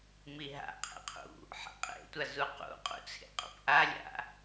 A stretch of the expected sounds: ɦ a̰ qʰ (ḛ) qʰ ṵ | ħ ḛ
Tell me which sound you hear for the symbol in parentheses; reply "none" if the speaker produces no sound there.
ḛ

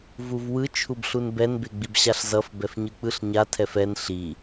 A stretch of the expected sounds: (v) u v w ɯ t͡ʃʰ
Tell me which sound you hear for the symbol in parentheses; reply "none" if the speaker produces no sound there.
v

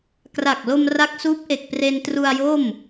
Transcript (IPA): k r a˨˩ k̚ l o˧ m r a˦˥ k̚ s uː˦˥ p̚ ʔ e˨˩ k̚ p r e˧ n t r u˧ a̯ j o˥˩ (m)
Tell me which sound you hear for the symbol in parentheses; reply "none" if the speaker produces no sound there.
m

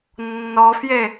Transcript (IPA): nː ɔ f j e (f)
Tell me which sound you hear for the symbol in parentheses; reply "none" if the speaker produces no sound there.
none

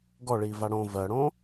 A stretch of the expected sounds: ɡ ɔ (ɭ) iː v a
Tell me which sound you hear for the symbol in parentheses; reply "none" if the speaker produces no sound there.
ɭ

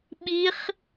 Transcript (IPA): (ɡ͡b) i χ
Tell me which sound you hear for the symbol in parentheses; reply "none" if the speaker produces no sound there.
ɓ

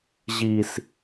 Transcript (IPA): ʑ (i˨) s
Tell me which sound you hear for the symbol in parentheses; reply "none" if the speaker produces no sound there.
i˨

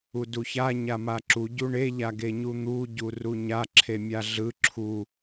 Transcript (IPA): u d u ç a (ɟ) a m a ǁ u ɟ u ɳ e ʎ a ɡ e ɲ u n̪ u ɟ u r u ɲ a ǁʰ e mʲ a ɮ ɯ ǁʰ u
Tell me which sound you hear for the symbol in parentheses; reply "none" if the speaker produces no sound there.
ɲ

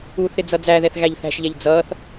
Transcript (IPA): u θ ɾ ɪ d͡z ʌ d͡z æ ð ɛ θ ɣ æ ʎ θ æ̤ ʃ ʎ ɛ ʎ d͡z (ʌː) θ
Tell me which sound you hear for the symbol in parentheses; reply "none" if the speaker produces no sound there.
ʌː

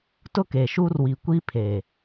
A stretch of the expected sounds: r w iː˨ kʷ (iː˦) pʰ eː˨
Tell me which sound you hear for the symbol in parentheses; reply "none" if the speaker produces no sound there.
iː˦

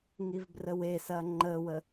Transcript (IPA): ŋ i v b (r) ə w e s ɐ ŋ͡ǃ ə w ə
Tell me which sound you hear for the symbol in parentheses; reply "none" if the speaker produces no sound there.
r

